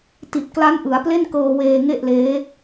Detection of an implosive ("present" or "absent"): absent